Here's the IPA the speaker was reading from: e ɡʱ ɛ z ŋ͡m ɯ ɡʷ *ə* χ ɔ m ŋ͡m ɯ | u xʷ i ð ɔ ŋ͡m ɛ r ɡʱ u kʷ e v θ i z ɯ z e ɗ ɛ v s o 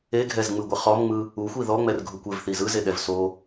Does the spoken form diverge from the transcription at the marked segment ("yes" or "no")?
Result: yes